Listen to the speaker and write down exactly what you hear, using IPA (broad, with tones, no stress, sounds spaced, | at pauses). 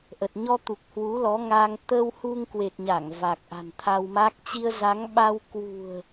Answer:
ʔ ə˨˩ t̚ ɲ ɔ˧ t̪ u˨˩ k̚ h w u˨˦ l ɔ˨˦ ŋ a˧ ŋ t̪ ə˧ w h u˧ ŋ k w e˨˩ t̚ ɲ a˧˩ ŋ v a˨˩ k̚ ʔ a̤˨˩ n t̪ʰ a˧ w m a˦˥ k̚ t͡ɕ i˧ ə̯ z a˨˦ ŋ ɓ a˧ w k w ṳ˨˩ ə̯